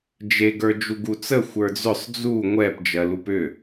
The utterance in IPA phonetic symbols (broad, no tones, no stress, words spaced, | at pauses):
d͡ʒeɡə˞ d͡ʒuɡut͡sə xʷə˞d͡zʏsˤ d͡zu ŋʷɛp d͡ʒɜlupʏ